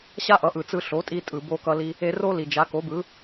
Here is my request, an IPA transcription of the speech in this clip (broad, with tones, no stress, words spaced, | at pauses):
ɕa˥ʔʌ˩˥ʔɯ˩ t͡sɯ˧ɬo˩˥tʼi˧ tʼɯ˩bo˧kʌ˧li˧ | e˧ro˥ li˩d͡ʒa˩˥ ko˩˥bɯ˩˥